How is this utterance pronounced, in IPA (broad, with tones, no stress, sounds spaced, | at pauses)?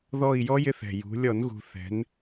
ð ɔ˦˨ i̯ j ɔ˦˥ j ɪ˦˨ θ ɛ̤˨˩ j ṳ˩˧ lʲ ɔ˧˩˧ n ɣ ṳ˨˩ θ ɛ̤˩˧ n